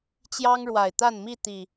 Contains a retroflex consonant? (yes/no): yes